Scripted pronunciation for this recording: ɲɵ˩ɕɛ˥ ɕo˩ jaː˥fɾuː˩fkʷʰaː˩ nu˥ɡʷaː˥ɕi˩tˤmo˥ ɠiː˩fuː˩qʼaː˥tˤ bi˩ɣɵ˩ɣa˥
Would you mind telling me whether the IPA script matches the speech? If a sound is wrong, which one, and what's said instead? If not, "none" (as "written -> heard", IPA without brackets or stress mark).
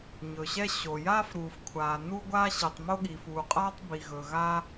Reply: none